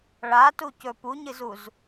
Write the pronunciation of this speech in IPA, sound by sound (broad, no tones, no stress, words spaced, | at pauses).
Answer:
ɭatucɵ puɲɨzuz